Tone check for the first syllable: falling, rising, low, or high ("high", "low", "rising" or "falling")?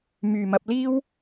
low